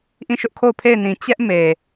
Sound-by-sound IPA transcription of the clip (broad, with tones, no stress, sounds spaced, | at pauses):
ʔ ĩ˦˨ ʃ ʊ˦ ʔ kʰ o˦˨ ʊ̯ pʰ e˦˨ ɪ̯ n ĩ˨ t͡ɕ ɛ˦ ʔ m e˨